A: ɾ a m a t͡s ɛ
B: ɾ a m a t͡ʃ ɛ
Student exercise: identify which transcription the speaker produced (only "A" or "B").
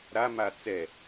A